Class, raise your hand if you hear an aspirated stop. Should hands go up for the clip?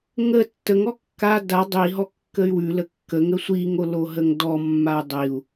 no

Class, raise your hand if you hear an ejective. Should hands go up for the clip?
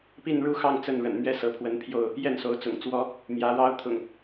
no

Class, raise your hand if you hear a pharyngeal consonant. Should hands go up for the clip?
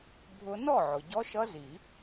yes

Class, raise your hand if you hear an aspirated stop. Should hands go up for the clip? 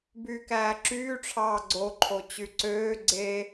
yes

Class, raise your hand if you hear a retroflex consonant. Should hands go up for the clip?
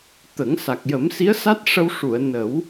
yes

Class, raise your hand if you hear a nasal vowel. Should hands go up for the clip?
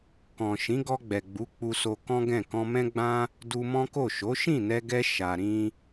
yes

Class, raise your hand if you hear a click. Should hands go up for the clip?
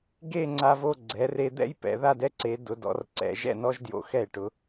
yes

